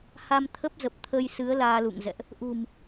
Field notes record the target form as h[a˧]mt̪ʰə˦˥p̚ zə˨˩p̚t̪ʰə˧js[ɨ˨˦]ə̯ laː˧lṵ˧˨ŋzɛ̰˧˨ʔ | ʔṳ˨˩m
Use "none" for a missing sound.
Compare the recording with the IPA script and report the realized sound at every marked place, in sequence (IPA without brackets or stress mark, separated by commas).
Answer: a˧, ɨ˨˦